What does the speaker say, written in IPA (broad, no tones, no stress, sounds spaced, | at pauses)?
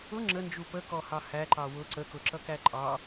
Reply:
ʊ ŋ͡ǁ ə n d͡ʒ u p ə k ɔ h ɑ h æ ǃ ɑ w ʊ ǀ ə k ʊ ǁ ʌ k æ ǃʼ ɑ